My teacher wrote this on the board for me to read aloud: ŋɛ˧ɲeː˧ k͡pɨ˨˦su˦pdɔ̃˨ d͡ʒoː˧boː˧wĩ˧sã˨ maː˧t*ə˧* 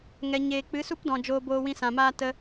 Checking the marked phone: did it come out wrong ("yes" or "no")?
no